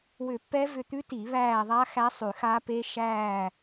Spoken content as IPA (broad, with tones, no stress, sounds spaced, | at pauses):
w ʏ˧˩˧ pː ɛ˦˥ v ʏ˦˨ t̪ ʉ˦˥ t i˧˩˧ β æː˦˨ ðˤ a˦˥ x æ˦˥ sˤ ʉ˧˩˧ x a˦˥ p e˦˥ ʃ æː˦˨